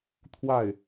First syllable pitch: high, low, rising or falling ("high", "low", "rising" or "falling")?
falling